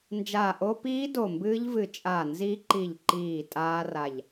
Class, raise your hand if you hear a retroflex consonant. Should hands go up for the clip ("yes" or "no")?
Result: no